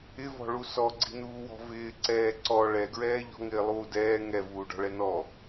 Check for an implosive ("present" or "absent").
absent